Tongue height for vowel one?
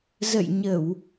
mid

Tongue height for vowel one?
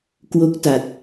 mid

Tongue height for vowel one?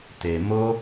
mid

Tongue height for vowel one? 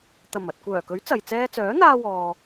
low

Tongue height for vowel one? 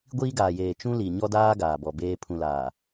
high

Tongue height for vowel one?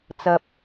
low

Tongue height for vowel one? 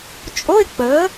mid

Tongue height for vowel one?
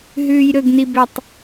high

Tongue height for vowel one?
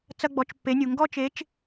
low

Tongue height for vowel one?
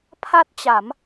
low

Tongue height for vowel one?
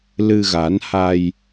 high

